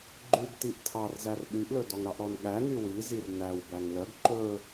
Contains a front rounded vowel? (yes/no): yes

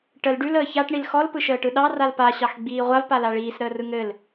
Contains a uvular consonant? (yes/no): yes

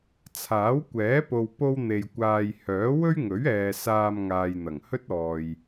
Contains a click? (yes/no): no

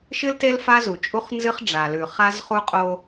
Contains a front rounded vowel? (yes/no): no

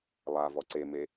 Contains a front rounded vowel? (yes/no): no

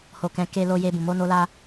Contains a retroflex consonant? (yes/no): no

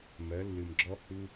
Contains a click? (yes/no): yes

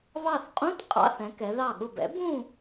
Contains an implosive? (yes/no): yes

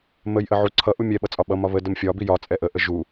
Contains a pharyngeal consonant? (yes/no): yes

